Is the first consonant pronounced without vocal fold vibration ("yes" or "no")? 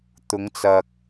yes